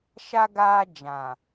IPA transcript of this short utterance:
ʃ a˦ ɡ aː˦ d͡ʒ ã˨

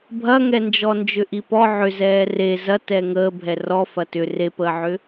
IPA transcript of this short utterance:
bʱ ɐ ŋ ɛ n d͡ʒ ɔ n d͡ʒ ʏ ʔ i p ɔ ʕ ʏ z ɛː r e z ɐ t ɛ ŋ əː bʱ ɛ r ɔ f ɐ t ʏ r e p əː ʕ ʏ

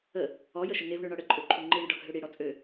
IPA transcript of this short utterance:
ə | ɔ j ə ʃ ə ŋ e v ɳ ø ɳ ɒ ɽ ə ǃʼ ø ǃʰ u ŋ͡ǃ i ɳ ə ɖ ɒ ɡʱ ø ɽ i ɽ ɔ t͡sʼ ø

